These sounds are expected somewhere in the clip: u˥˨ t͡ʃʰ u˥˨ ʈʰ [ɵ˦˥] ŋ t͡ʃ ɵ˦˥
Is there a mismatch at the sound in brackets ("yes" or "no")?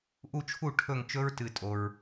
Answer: yes